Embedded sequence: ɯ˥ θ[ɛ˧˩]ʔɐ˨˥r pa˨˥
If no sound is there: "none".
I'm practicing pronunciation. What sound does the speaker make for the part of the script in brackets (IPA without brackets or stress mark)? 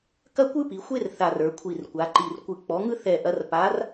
ɛ˧˩